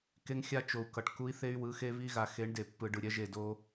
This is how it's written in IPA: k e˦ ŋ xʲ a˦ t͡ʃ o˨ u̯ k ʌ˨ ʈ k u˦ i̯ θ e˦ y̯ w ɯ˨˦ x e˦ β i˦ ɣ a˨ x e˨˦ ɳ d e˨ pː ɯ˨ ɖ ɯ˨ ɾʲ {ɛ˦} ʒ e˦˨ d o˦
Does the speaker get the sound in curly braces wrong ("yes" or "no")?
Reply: no